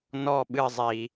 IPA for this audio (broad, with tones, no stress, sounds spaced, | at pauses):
n ɔ˦˨ ɓ ɨ˦˨ zˤ i˨